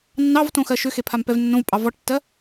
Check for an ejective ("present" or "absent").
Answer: present